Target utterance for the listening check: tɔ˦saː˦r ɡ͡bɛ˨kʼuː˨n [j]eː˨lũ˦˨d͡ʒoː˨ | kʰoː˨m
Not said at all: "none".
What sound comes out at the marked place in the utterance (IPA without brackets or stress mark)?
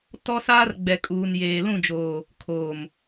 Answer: j